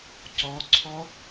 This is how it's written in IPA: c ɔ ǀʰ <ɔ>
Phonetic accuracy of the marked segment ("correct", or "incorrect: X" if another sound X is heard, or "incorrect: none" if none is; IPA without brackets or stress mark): correct